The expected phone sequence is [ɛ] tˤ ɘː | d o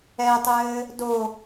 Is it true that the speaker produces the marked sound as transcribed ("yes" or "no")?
yes